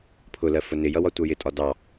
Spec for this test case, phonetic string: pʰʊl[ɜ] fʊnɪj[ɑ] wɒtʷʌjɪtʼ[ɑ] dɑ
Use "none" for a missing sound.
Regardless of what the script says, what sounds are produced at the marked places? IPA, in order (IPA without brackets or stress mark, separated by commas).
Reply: ɜ, ʌ, ɒ